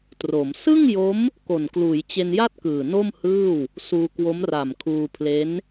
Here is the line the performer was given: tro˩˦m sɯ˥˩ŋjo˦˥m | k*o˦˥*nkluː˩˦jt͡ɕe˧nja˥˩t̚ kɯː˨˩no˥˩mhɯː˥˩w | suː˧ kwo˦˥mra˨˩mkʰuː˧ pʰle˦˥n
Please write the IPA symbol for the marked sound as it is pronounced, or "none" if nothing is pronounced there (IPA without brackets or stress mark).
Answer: o˨˩